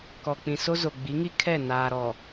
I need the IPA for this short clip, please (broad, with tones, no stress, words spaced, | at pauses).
kɔ˨k͡pĩ˨ so˦zo˨ ɡ͡bi˨˦ŋi˦ kʰɛ˦˨ naː˨ɾɔ˨